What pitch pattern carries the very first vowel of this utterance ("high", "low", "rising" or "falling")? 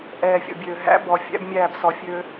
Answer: low